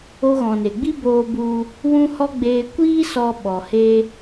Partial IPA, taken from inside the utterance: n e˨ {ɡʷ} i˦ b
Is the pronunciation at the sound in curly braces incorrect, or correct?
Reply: incorrect